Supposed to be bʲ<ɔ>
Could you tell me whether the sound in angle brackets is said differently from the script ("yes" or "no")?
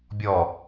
no